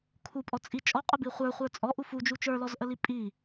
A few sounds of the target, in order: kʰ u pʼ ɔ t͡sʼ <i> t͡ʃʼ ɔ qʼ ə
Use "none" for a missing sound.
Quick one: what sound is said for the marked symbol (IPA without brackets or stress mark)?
i